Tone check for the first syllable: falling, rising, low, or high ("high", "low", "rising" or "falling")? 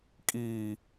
low